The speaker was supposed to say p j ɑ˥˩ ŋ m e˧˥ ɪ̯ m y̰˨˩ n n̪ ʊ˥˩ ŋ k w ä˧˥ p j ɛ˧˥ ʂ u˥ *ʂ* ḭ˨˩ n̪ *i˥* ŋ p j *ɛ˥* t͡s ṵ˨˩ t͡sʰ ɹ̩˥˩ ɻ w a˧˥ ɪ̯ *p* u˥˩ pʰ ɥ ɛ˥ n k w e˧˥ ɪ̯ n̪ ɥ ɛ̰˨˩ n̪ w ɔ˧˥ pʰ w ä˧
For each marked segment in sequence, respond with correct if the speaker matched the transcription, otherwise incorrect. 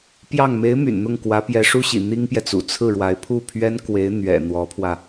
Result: incorrect: ɕ, correct, incorrect: ɛ˨, incorrect: pʰ

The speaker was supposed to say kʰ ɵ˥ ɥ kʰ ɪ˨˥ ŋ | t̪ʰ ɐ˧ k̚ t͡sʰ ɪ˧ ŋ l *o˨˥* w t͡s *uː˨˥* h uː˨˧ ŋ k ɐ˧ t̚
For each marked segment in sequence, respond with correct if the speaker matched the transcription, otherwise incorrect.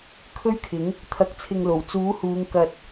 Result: incorrect: o˨˩, correct

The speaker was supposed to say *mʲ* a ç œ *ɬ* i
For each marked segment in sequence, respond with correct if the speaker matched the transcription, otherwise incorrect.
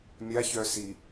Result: correct, incorrect: s

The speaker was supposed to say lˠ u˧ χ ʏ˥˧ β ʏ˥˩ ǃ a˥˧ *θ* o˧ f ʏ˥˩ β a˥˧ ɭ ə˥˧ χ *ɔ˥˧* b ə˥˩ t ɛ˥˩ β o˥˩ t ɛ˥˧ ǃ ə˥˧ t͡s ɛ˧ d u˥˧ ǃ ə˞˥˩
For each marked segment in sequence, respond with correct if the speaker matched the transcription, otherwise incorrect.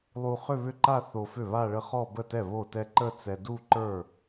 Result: correct, correct

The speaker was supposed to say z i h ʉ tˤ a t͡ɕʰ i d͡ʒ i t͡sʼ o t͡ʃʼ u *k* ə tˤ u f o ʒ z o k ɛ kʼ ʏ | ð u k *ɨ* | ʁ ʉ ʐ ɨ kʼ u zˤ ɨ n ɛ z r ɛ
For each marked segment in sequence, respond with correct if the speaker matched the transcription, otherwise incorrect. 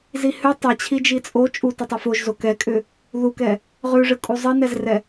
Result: incorrect: t, incorrect: ɛ

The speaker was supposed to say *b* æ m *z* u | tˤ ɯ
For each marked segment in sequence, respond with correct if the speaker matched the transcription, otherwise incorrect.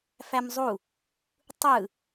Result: incorrect: f, incorrect: zˤ

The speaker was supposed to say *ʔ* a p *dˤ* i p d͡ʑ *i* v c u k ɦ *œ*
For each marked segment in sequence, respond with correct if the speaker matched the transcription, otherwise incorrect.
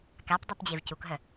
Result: incorrect: k, correct, incorrect: e, correct

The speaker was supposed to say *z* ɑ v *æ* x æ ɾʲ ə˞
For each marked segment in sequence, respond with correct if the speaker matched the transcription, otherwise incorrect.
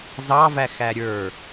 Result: correct, correct

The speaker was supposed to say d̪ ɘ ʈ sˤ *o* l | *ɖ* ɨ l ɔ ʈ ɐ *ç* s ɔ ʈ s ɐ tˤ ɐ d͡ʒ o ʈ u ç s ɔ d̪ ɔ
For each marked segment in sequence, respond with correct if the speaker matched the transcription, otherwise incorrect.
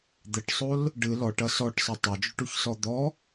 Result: correct, correct, incorrect: none

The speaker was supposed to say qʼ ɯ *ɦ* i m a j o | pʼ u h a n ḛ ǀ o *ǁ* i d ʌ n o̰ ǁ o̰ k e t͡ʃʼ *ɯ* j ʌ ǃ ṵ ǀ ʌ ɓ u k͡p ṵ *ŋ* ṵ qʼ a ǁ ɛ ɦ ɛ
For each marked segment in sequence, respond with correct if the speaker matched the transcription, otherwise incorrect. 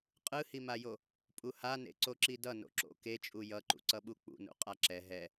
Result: incorrect: h, correct, incorrect: u, incorrect: n

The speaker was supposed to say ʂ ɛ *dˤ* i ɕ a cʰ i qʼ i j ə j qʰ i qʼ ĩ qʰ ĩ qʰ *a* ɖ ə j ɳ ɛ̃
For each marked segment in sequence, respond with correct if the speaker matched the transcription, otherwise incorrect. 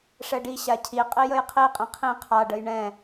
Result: incorrect: ɖ, correct

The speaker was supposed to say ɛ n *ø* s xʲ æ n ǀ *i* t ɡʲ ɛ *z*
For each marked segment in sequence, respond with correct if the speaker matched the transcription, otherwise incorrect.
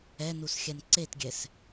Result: incorrect: u, incorrect: e, incorrect: s

